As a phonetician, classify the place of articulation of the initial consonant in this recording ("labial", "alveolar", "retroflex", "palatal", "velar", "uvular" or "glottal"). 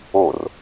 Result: alveolar